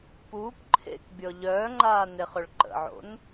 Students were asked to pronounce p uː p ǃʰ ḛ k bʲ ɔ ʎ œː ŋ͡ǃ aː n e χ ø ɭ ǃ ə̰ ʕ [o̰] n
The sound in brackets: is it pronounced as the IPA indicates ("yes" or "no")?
yes